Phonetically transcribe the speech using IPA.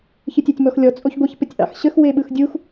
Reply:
ç ɯ tʲ e tʲ m ɔ x lʲ ɔ t͡sʼ o ç ɡʷ ə ç p ə tʲ ʔ ɑ̰ x ɕ ə x w e ɓ ɯ x dʲ u x

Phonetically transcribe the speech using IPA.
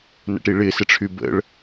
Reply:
n ə̰ ʈ i ɭ ɪː s ɪ ʈ͡ʂʰ y b ə̰ ɭ

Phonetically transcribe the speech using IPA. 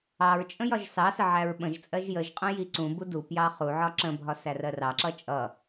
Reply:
ɑ ɹ t͡ʃʼ ə̃ j ɒ ʒ s ɑ s ə ʕ æ ɹ ɓ ə̃ ʒ t͡sʼ ɜ ʒ j ə ʒ qʼ ə̃ j i ǀ ũ b u d u p j ɑ χ u ʕ ɒ ǁ ə̃ bʱ ɒ s æ r ɜ r ɑ ǁ ʌ t͡ʃʼ ʌ

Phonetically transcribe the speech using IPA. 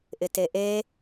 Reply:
ʔ ɪ t e ʔ e

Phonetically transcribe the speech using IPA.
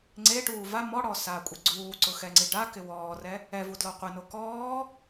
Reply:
ŋ͡ǀ e ʈ uː v a m ɔ ɽ ɔ s aː kʷʼ e ɡ͡ǀ uː ǀ ʊ x ɛ ŋ͡ǀ i ɖ a k ɪ w ɔː r ɛ | ɛ v u d l ɔ qʷ ɪ n o k ɔː

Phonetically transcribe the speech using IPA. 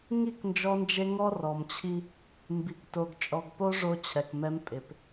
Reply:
ŋ i˦˨ k n d͡ʒ ɔ˦ n d͡ʒ e˦ ŋ ɔ˦ r ɔ˨ m t͡ɕʰ i˦ | m b i˨ k t o˨ ɡ t͡ʃʼ ɔ˨ ɡ p o˦ ʐ o˦ t͡ɕʰ ɛ˨ k m ɛ˦ m pʼ ɪ˨ p

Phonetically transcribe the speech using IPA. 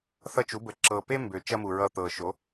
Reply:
θ ʌ˦ t͡ʃ u˩˥ b ə˨˩ ǁ ɤ˨˩ p e˦ m b ø˨˩ t͡ʃ ɐ˦ m u˨˩ ɹ ʌ˦˨ t̪ ɤ˨˩ ʃ o˩˥

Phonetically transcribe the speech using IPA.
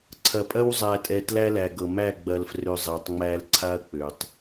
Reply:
ǀʰ ɐ˨ pʼ ɐ˦ w zˤ æ˨ tʼ ɛ˨ t l æ˦ l æ˨ ɡ ɤ˨ m æ˦˨ ɡ͡b ɐ˨ l f r ø˨ zˤ ɛ˨ tˤ ŋ͡m æ˦ l ǀʰ a˦ ɐ̯ k͡p ø˨ tˤ

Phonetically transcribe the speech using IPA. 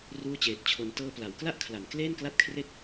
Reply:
r uː˥˩ t͡ɕ eː˨˩ t̚ t͡ɕʰ o˧ n t ɤː˧ p l a˩˦ w k l a˥˩ ʔ kʰ l a˩˦ n k l eː˥˩ n k l a˥˩ t̚ kʰ r e˥˩ k̚

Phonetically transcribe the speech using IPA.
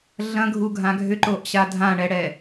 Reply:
ɮ ɐ̃ ɡʱ u ɡʱ ã ɡʱ ʏ ǃ o ʔ ɕ a dʱ ã ɳ ɛ ɽ ɛ

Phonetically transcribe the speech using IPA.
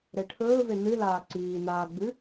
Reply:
ɾ e ʈʰ ɵː v e n ɨ l aː ǀ iː n aː ɡ͡b ʉ

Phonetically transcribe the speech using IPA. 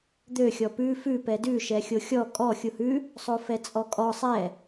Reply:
d̪ ø xʲ ɔ p ʉ f ʉ p ɛ d ʉ ʃ ɛ xʲ o xʲ ɔ kʼ ɔ xʲ u h ʉ | sˤ o f ɛ t͡sʼ ɔ kʼ ɔ sˤ ɛ

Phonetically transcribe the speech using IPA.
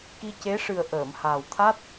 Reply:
k i˧ c e˧˥ ʂ ɨ˨˩ ə̯ ʔ əː˨˩˨ m h aː˨˩ w t̪ʰ a˦˥ t̚

